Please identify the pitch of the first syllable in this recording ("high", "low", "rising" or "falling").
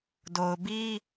low